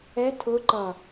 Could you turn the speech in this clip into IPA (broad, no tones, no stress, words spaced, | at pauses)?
ɛ tʰʊ ǃʌ